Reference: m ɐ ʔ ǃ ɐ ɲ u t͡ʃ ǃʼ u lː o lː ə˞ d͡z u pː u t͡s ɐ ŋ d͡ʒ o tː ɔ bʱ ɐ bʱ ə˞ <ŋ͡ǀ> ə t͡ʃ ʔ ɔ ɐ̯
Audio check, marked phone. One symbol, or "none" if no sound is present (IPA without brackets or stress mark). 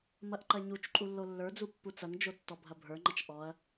ŋ͡ǃ